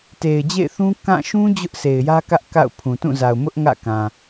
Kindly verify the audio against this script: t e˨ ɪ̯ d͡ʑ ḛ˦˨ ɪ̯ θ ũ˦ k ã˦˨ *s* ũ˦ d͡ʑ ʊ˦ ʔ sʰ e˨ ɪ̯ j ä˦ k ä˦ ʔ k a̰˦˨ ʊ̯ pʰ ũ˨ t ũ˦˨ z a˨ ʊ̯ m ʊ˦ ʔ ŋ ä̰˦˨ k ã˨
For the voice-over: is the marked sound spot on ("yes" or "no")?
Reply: no